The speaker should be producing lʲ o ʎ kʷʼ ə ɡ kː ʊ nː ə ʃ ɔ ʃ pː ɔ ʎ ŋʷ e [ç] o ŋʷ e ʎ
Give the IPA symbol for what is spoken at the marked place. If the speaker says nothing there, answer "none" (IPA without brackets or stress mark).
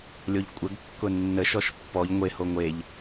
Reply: h